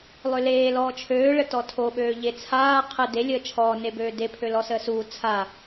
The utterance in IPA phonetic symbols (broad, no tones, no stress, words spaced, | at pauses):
lˠøleː lɔːt͡ʃʰøː ɭətɔtʰo ɓøːʎet͡sʰaː qʰə de lʲəːt͡ʃʰɔː nebøːde pʰølɔsəːsuː t͡sʰa